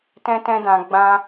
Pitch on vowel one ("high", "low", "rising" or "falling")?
high